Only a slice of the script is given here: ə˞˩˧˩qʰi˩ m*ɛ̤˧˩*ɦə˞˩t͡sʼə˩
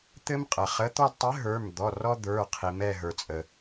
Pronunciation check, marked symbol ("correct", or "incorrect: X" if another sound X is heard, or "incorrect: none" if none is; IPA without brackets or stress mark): incorrect: ɛ˧˩